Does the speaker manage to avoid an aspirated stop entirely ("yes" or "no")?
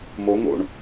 yes